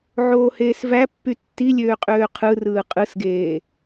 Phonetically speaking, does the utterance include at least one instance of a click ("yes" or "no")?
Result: no